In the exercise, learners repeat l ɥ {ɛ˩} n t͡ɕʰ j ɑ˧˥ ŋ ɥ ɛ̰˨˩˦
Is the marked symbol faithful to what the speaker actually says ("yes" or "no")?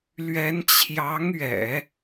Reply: no